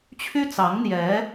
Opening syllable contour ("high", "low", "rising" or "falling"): high